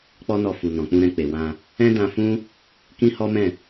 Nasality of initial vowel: oral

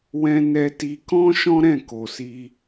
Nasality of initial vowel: nasal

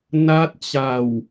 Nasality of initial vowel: oral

